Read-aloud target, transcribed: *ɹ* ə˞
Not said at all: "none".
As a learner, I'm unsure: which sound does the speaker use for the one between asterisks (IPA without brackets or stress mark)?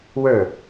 w